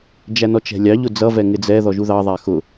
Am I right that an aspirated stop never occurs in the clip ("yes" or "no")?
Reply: yes